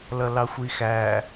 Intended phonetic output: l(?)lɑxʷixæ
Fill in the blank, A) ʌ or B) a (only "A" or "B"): A